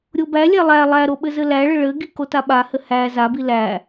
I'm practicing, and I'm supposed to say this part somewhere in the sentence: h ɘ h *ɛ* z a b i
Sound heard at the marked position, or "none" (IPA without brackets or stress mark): æ